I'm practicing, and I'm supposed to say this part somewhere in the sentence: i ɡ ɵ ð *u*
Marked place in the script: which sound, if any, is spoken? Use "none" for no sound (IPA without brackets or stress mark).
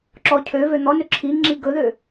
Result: ø